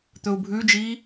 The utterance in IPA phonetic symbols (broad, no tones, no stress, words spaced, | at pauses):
t̪ɵu̯bʱʉd͡ʒiː